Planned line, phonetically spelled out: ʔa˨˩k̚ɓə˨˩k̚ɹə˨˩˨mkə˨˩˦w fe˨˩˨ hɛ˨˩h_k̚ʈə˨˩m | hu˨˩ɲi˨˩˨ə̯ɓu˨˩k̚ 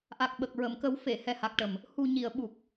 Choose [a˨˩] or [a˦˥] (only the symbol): a˨˩